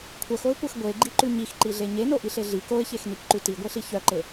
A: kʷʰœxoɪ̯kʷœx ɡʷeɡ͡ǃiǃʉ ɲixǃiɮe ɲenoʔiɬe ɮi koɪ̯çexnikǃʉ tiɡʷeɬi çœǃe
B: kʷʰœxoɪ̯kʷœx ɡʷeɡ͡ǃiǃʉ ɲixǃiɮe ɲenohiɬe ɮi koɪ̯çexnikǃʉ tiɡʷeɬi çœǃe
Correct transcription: A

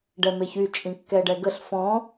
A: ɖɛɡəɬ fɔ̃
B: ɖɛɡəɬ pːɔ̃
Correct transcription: A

